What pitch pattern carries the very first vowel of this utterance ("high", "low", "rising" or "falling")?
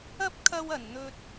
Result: high